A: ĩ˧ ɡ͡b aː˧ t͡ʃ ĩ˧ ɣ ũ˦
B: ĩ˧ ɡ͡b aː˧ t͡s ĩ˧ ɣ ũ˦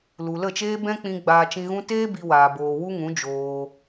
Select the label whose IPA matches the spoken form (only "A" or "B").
A